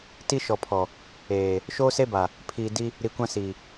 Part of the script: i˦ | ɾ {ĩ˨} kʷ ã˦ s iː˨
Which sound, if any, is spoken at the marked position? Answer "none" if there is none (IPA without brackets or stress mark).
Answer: i˨